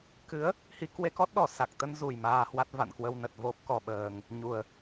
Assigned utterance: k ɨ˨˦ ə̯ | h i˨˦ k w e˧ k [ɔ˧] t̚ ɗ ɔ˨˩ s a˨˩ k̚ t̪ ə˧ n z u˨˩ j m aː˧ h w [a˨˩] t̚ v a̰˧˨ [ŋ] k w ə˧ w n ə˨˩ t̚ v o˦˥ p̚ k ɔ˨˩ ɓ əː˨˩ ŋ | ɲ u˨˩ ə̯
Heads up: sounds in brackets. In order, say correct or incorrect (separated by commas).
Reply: incorrect, incorrect, incorrect